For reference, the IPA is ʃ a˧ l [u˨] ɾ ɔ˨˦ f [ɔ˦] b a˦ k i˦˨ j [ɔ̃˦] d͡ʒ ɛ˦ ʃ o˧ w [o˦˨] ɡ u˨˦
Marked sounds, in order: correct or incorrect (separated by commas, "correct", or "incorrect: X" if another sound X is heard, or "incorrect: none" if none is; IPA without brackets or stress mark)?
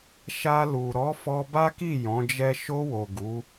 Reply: correct, incorrect: ɔ˧, incorrect: ɔ̃˨˦, incorrect: o˨